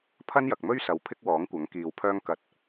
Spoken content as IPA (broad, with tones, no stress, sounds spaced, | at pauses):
pʰ ɐ˥ n j ɐ˨ k̚ m ɵ˥ ɥ s ɐ˨ w pʰ ɪ˥ k̚ w ɔː˨˥ ŋ kʷ ɐ˨˥ ŋ k iː˨ w pʰ œː˥ ŋ k ɐ˧ t̚